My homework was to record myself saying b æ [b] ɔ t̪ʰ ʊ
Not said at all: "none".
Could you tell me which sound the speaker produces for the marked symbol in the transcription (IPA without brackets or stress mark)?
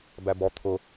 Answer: b